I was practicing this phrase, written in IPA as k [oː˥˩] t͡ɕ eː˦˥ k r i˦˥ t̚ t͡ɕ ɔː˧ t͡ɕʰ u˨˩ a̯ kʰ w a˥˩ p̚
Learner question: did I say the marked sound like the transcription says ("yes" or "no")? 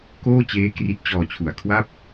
yes